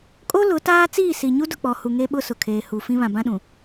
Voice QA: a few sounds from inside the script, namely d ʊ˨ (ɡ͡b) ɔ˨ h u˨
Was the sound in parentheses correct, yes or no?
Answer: no